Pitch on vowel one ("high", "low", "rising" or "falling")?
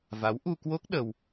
rising